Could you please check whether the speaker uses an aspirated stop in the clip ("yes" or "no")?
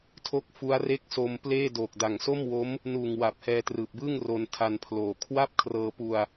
yes